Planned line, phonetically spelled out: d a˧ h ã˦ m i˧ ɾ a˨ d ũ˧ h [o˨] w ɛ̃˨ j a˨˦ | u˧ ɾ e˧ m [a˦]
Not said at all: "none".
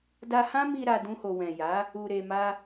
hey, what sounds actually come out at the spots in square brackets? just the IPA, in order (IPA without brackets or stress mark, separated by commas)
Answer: o˨, a˦